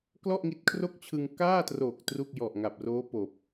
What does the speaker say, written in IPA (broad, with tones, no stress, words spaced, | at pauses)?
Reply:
klɔ˥˩ʔŋi˦˥t̚kʰro˥˩k̚t͡ɕʰɯ˧ŋ kaː˥˩tro˨˩k̚ tru˥˩k̚ jɔ˨˩ʔŋa˨˩p̚roː˦˥ poː˨˩p̚